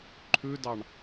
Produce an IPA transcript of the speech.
ǃʰ ʉ d ɑ ɳ

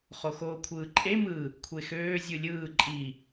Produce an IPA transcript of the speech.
χ o x oː kʷʰ ɯː ǃʼ e m ɯ | kʷʰ e x øː zʲ ɯ lʲ ɯː ǃʼ i

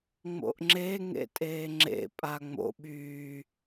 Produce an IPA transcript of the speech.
ŋ͡m o̰ ʔ ŋ͡ǁ e ŋ ḛ tʼ eː ŋ͡ǁ ḛ pʼ aː ŋ͡m o̰ ɓ yː

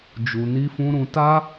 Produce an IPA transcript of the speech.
d͡ʒ u˨ n i˧ f ũ˧ ɾ ũ˧ t a˦

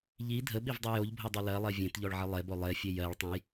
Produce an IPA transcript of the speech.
ʎ i dʱ ə ɓ i v dˤ o j o ʎ bʱ o dˤ o l ɜ lˠ e vʲ ẽ t ʎ ɔ ɭ ʕ ə lˠ e b o lˠ e fʲ e j ɜ ɭ tˤ ẽ j

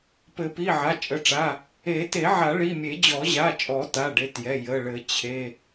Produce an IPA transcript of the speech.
p ɘ˨˩˦ p i˩˧˩ ʕ a˩˧˩ t͡ʃʼ ə˩˧˩ ʈ͡ʂ a˩˧˩ | e˨˩˦ t e˨˩˦ ʕ a˨˩˦ ɭ i˩˧˩ mʲ e˨˩˦ d͡ʑ ɔ˨˩˦ ʑ a˩˧˩ t͡ʃʼ ɔ˨˩˦ t a˩˧˩ ɖ e˩˧˩ t j ɛ˩˧˩ j ə˩˧˩ ɭ ɘ˨˩˦ t͡ɕʰ e˩˧˩

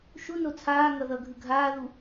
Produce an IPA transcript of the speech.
ʃ u n o t͡sʰ aː ŋ ʌ ð ʌ ɡʱ ɯ ɡʱ aː ð u

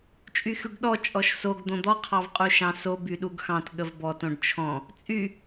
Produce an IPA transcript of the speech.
t͡ʃʼ y x y ɖ ɗ ɔ t͡ʃʼ ɔ ʃ s o ɡ d̪ õ d̪ ɔ qʰ ɑ v qʼ u ʃ ɑ̃ s o b y ɗ u ɡ x ɑ̃ t ɠ ə v b ɔ t õ ɖ t͡ʃʰ ɔ̃ | t͡sʼ y

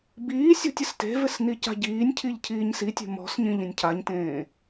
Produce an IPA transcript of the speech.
b iː sʲ ɔ̤ tʲ ɪ s t e̤ v ɪ s n i c a̤ ɟ iː nʲ cʰ i ʎ cʰ iː ɲ s i tʲ e̤ m ɔ̤ s ɲ ĩ ʎ ĩ nʲ cʰ a ɲ t ẽː

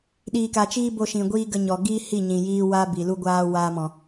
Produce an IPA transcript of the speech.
ɗ iː˨ k a˨ t͡ʃ iː˦ b o˧ ʃ ĩ˨ ɡʷ iː˦ ɡ ə˧ ɲ ɔ˨ ɡ iː˦ h i˦˨ ɲ ĩ˨ j iː˧ w a˦ b i˨ l u˧ ɡʷ aː˧ w aː˧ m ɔ̃˨

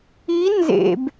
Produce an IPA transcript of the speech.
i n z ḛ b

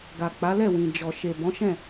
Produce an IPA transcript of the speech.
ɡ a˨ k͡p a˨˦ l ɛ˦˨ w ĩ˨ d͡ʒ ɔ˨ ʃ e˨ b ɔ̃˨˦ ʃ ɛ̃˦˨

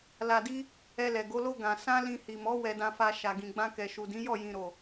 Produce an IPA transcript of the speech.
l a˧ d i˦ | ɛ˧ l ɛ˨ ɡ o˨˦ l o˦ ɡ ã˧ s ã˦ l ĩ˧ h i˨ m ɔ˨˦ w ɛ˧ d ã˧ f a˧ ʃ a˨ ɡ ĩ˨ ɡ͡b ã˧ k ɛ˨ ʃ u˨ d ĩ˨˦ j ɔ˦˨ j ĩ˨ ɾ o˨

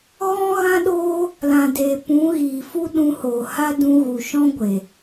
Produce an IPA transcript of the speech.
ɣ ɔ̃˦ ɣ ã˦ ɗ oː˦ | l ã˨ d eː˨ p ũ˨˦ ɣ iː˨ f u˦ ɗ ũ˧ h oː˨ h a˦ d ũ˧ ɣ u˨ ʃ ɔ̃˦ ɡʷ e˨

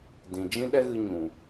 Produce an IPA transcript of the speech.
d ĩ˨ d͡ʒ ĩ˦ ɗ ɛ˦ ɣ ɨ˧ ɲ ũ˨

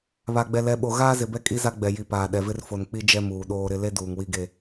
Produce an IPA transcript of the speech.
β a˨ ɡ͡b ɛ˨ l ɛ˨ ɓ o˨ ɣ aː˦ z ɪ˨ b ɛ˦ kʼ i˦ z a˦ ɡ͡b ɛ˨ j i˨ p aː˨ ɗ ɛ˨ v ɪ˦ r f o˨ n k͡p i˦ d͡ʒ ɛ˦ m uː˨ ɗ oː˦ ɾ ɪ˦ l e˦ d uː˨ ŋ w i˦ ɡ e˦

